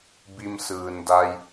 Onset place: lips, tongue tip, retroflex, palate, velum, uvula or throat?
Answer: lips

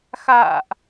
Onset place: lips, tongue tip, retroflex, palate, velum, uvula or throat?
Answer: velum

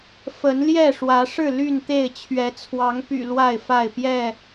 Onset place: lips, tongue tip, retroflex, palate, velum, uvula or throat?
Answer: lips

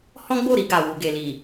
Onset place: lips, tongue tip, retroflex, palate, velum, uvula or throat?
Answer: throat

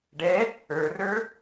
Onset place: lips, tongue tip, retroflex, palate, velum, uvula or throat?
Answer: retroflex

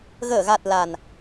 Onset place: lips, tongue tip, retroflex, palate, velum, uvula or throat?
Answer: velum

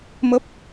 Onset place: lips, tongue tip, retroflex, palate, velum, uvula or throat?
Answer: lips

